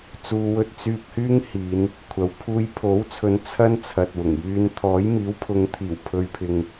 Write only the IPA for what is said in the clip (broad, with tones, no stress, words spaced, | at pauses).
t͡suː˧wɵ˥t̚ t͡syː˧p̚hyː˥ŋ hiː˨˧n | kʷʰɐ˨w pʰuː˧jpʰo˨˥wt͡sʰɵ˨˧n t͡sʰɐ˥n t͡sʰɐ˨t̚wʊ˨˩ŋ jyː˧n t̪ʰɔː˨˥jmiː˨˥wpʰʊ˨˧ŋt̪ʰiː˨˩w pʰɵ˨ɥ pʰɪ˨ŋ